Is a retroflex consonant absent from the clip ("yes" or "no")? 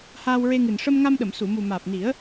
no